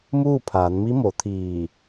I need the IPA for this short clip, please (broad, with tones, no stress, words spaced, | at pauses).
muː˥˨pʰaː˩˧nmi˧˥ mo˩˧t̪ʰiː˧˩